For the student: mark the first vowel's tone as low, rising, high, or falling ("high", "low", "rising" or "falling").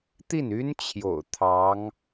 falling